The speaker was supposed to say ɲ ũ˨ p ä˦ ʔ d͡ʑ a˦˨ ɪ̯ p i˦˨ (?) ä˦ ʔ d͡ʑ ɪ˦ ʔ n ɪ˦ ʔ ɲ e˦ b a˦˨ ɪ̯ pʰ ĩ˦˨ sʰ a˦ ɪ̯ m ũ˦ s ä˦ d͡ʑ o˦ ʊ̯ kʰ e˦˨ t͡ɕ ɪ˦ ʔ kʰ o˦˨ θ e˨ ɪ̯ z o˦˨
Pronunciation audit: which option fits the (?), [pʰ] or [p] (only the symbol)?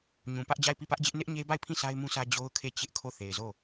p